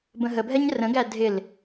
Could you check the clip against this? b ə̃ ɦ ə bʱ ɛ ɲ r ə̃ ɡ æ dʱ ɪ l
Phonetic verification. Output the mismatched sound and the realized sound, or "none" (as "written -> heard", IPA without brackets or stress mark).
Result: none